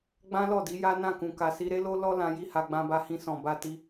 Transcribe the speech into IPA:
ɡ͡b ã˦ l ɔ˦˨ d i˨˦ j a˦ n ã˦˨ k ũ˨ k a˨ s i˧ ɾ e˦ l o˦ l ɔ˦ l ã˧ j i˦ h a˧ ɡ͡b ã˧ b a˧ h ĩ˧ s ɔ̃˨ b a˧ t i˧

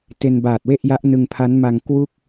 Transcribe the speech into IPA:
t e˧ n b aː˨˩ t̚ w e˥˩ ʔ j a˦˥ ʔ n ɯ˧ ŋ pʰ a˦˥ n m a˧ ŋ k w u˥˩ k̚

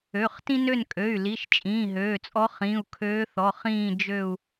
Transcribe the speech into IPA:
ø˩˧˩ χ t ĩ˥ n ø˦˨ n kʼ ø˩˧˩ y̯ l i˩˧˩ ʃ t͡ʃʼ ĩː˩˧˩ ɦ øː˩˧˩ t͡sʼ ɔ˧˥ χ ĩ˩˧˩ u̯ kʰ øː˧˥ θ ɔ˩˧˩ χ ĩː˦˨ d͡ʒ ø˦˨ u̯

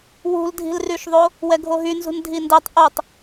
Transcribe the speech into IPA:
w ṳ l dʱ i̤ l r y ʃ ðˤ o | w ɛ ɡʱ o ɦ y n z ṳ n dʱ i n d ɛ tˤ ʔ o tˤ

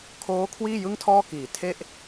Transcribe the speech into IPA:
kʰ oː˦˥ kʰ w iː˥˩ j ɯ˥˩ ŋ tʰ ɔː˥˩ k iː˨˩ tʰ e˥˩ ʔ

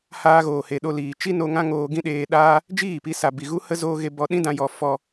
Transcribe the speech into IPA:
h aː˧ ɣ oː˨ h e˨ ɗ o˧ l iː˨ t͡ʃ i˦ n o˧ ŋ ã˦ ŋ oː˧ ɡ ĩ˦ ɗ eː˧ ɗ aː˦ | d͡ʒ iː˦˨ p i˧ s a˨ b i˨ ɣ u˦ h ə˦ z oː˧ ɣ e˧ b ɔ˧ ɗ ĩ˦ d ã˧ j ɔ˧ f ɔ˧

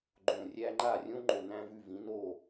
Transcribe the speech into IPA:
ɡ͡ǃ õː˧˩ rʲ æː˥ ŋ͡ǃ aː˥˨ rʲ õː˥ ŋ͡ǃ o˧˩ n æ̃˥ v ʉ˥˨ v ĩ˩˥ n oː˥˨

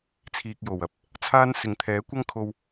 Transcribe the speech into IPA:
t͡sʰ iː˧ k̚ j o˨ w ɐ˨ p̚ | t͡sʰ aː˥ n s ɪ˨ ŋ t̪ʰ ɛː˨˥ kʷ ɐ˥ ŋ kʰ o˧ w

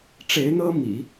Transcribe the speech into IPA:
ʈ͡ʂ e˧˥ ɪ̯ n̪ ɤ˥ m ḭ˨˩˦

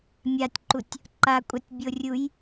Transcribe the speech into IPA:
mʲ a tʲ ǃ u tʲ | ǃ a kʷʼ a tʲ bʲ o rʲ u j

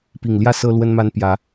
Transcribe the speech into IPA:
p i˨˩ ŋ l j ä˥˨ s ɤ˦ l w ə˦ n m a˦ n p j ä˨˦

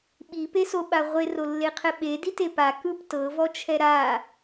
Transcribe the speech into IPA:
ɓ i p e s o ɓ a ʁʷ e r o lː e qʰ ɛ ɓ e d i t e p a k ɯ p t ɤ v ɔ t͡ʃʰ ɛ ɾ a

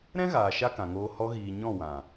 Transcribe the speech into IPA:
ɾ ɛ̃˦ ɣ aː˨ ʃ a˦ k ã˨ ŋ oː˧ h ɔ˧ ɣ iː˨ ɲ ɔ̃˦˨ w ã˨

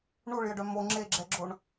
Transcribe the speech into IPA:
ɳ u ɭ j ə ɖ œ m o ŋ͡ǁ e ɡ͡ǁ ɛ ɡ͡ǁ o ɳ

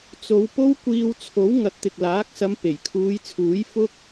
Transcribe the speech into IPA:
t͡s o˨˧ w p o˥ w kʷ iː˧ w t͡sʰ o˨˥ w ŋ ɐ˨˥ t̚ t̪ ɪ˨ k̚ l aː˨˥ k̚ s ɐ˨˧ m p e˨˩ j kʰ uː˨˧ j t͡sʰ uː˨˥ j f ʊ˧ k̚

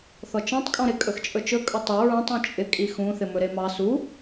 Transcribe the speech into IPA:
θ ɔ t͡ʃ ɔ̃ tˤ kʼ ɔ̃ ɾ ɪ kʼ ɵ x t͡ʃʼ ɵ t͡ʃ ɵ kʼ ɵ tˤ ɘ ɹ ũ tˤ ɔ̃ t͡ʃʼ ɪ kʼ i x ũ θ ɪ m ɵ ɾ e m ɑ s u

